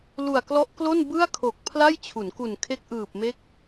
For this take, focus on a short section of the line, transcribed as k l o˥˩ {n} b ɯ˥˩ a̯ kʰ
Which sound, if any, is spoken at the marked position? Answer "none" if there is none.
n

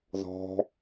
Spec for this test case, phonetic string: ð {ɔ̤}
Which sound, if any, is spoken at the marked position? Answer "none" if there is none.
ɔ̤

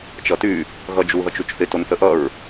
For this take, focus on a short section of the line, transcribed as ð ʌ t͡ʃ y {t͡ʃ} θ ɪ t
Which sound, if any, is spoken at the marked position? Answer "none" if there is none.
t͡ʃ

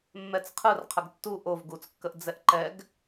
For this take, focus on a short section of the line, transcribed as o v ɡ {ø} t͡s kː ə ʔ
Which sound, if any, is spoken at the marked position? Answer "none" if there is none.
u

